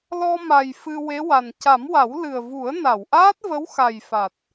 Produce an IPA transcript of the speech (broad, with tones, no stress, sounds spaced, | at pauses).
l ɔ˧ m a˨˩ j f ɨ˧ w e˧˥ w a˨˩ n c a˨˩˦ m w a˨˩˦ w l ɨ˨˩ ə̯ v u˨˩˦ ə̯ n a˨˩˨ w ʔ aː˦˥ t̚ v ə˧˥ w x a˨˩ j f a˨˩ t̚